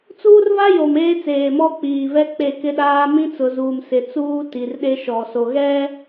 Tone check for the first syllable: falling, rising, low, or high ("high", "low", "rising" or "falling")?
high